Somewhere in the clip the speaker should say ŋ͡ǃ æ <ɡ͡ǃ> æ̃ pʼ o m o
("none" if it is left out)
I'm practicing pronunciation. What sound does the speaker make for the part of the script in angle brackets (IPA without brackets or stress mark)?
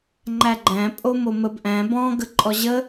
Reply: ɡ͡ǃ